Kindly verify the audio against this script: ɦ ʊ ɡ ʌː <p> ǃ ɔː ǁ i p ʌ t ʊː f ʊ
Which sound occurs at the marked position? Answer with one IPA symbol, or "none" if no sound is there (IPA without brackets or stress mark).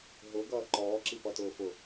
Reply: none